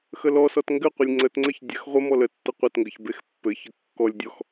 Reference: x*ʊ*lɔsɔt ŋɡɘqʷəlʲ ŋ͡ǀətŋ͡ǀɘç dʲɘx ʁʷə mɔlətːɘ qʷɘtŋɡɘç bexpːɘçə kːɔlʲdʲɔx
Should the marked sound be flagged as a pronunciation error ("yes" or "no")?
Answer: yes